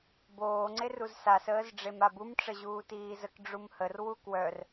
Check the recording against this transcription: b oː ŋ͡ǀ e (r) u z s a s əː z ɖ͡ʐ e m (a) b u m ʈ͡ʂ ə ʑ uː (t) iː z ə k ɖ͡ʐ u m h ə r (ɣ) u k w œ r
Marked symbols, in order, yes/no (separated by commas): yes, yes, yes, no